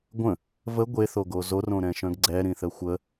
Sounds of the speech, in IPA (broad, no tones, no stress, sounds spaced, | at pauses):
ɡʷ ə̃ | v ə ɡʷ e θ o ɡ o z o r õ ɾ ɛ̃ ʃ œ̃ ɡ ɡ͡ǀ ɛ ɾ ĩ θ ə xʷ ə